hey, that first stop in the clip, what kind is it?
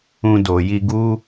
plain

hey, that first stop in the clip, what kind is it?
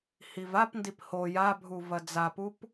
plain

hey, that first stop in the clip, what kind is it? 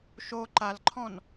click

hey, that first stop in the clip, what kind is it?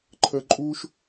click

